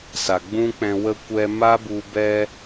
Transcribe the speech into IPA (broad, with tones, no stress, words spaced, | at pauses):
sa˨ɡ͡bũ˦k͡pɛ̃˧wə˦ kʷɛ˧ma˦bu˧ bɛ˦